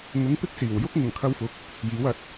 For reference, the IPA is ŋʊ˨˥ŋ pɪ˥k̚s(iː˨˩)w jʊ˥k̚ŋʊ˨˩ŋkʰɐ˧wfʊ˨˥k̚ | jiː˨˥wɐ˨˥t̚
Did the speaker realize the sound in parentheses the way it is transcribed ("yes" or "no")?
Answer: yes